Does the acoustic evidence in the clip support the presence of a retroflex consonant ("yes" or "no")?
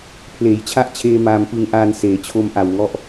no